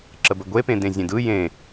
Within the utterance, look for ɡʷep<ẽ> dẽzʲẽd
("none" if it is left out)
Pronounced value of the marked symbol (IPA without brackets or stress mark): ẽ